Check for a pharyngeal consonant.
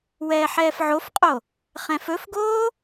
present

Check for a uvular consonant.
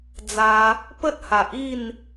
absent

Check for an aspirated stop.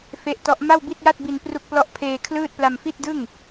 present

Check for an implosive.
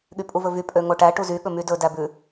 present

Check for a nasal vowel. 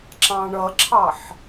present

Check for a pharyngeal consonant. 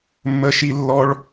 absent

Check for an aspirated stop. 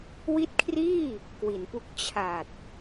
present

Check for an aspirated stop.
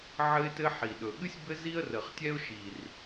absent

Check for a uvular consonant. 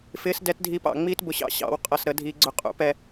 present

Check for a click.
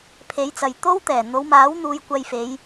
absent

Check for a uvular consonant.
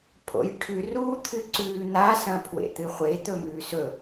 present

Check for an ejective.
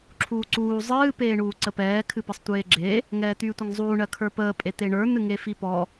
present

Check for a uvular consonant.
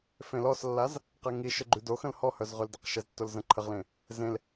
present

